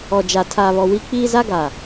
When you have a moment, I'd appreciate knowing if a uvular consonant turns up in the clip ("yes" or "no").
no